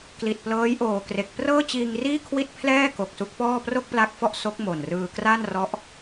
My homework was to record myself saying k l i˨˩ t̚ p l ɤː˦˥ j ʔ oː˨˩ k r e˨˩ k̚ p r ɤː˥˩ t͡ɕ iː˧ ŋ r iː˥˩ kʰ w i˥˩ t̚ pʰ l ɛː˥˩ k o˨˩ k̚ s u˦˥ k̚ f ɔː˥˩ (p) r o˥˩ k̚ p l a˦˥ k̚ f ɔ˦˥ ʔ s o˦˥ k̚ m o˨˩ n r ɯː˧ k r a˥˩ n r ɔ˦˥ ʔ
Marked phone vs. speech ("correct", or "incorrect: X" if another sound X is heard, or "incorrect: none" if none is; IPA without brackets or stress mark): correct